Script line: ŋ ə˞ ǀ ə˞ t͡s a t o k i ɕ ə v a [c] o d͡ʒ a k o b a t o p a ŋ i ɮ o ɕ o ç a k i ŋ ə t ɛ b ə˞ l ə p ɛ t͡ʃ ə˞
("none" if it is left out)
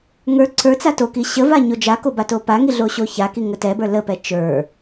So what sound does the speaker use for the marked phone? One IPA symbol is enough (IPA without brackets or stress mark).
ɲ